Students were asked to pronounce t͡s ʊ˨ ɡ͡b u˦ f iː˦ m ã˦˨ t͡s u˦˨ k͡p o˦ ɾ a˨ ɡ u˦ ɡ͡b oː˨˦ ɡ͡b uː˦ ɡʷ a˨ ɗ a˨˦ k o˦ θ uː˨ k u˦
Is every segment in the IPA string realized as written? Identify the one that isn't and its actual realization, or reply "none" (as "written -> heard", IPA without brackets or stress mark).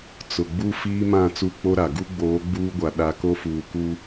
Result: θ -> f